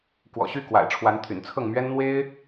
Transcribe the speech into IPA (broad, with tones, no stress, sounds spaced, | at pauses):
k w ɔ̰˨˩ ɕ y˥˨ k w a̰˨˩ ɪ̯ ʈ͡ʂʰ w a˨˦ n t̪ʰ y̰˨˩ n t͡sʰ ɤ˥˨ ŋ m ɥ ɛ˦ n n̪ w e˦ ɪ̯